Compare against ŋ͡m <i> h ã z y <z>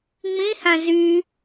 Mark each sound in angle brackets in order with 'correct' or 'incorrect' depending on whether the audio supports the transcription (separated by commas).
incorrect, incorrect